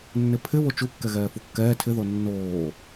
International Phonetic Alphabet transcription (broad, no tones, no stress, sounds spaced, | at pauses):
nː ɪ pʰ ɪ β o t͡ʃ u kː ɛ ɣ ɛː f u kː ɛː tʰ ɪ ð o nː oː